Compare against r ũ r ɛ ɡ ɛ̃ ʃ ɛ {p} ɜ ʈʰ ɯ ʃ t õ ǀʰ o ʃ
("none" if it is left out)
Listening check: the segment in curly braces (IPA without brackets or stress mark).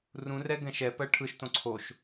p